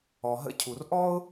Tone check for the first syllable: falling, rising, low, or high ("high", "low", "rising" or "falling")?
low